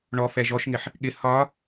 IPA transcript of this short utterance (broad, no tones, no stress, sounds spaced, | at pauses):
ɳ ɔ f ɛ ʒ ɔ ʃ ŋ ɪ ħ | ɠ ɪ h ɒ